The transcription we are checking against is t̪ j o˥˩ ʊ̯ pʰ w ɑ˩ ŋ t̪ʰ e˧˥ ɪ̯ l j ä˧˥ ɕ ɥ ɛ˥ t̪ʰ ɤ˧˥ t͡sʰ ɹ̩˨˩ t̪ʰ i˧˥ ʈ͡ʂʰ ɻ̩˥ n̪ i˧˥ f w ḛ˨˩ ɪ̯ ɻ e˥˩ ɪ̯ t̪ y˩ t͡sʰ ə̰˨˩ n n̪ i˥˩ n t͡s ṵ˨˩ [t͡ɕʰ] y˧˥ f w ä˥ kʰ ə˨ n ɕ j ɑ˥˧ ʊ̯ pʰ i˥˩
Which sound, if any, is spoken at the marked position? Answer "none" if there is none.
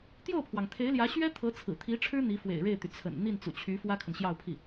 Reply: t͡ɕʰ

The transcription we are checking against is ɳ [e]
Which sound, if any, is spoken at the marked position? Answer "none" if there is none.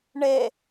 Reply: e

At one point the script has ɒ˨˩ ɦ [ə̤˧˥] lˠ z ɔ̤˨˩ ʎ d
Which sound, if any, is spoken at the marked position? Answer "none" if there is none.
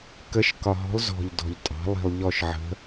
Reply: ɔ̤˧˥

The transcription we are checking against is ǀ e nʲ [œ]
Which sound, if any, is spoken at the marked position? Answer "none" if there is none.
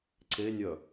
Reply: œ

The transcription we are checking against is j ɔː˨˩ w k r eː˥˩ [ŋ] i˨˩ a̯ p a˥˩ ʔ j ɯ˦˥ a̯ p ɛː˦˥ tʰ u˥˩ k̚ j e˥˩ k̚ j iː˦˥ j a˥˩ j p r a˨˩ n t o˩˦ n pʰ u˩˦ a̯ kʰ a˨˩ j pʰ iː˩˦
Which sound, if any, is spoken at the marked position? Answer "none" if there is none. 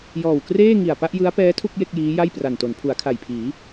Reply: ŋ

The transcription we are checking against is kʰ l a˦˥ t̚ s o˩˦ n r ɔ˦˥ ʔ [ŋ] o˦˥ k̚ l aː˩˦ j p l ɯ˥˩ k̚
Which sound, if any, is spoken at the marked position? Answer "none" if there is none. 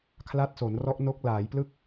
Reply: n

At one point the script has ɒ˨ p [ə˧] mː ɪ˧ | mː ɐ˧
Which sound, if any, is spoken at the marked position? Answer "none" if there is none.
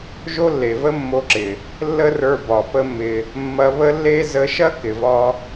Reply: ə˦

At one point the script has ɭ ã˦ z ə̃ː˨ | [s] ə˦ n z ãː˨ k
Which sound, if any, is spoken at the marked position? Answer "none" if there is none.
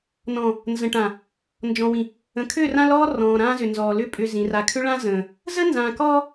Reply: z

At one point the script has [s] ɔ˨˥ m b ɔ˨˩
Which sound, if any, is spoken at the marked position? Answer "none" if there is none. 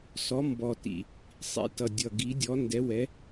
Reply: s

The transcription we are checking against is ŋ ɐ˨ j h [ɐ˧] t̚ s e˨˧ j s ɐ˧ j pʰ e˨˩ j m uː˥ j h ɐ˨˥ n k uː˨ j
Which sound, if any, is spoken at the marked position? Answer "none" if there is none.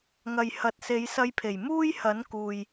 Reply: ɐ˨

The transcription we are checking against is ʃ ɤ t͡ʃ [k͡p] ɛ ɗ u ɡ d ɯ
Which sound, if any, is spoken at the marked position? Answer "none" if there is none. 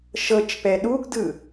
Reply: p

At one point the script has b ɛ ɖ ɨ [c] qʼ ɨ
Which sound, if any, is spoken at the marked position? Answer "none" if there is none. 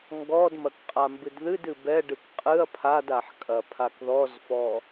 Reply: k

